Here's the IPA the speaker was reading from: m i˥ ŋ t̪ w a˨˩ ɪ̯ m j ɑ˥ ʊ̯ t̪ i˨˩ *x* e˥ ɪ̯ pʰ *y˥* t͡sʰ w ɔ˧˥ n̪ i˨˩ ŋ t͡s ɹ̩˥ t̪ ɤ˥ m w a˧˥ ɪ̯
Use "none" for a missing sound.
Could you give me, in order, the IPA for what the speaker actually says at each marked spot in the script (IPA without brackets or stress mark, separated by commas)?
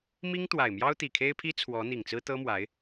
kʰ, i˥